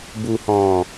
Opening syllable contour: low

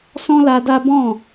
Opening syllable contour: high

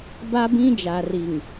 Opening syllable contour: high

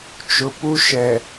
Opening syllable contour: low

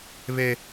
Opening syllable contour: high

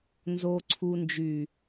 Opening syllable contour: low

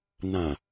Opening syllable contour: low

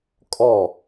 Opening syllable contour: falling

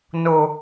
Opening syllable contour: low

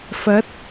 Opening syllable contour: rising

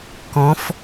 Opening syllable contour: rising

